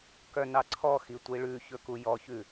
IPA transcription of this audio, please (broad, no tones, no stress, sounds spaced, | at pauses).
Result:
k œ n ɑ ǀʰ ɔ x i tʷ i ɭ ʉ ç ɵ k u j ɔ ç ʉ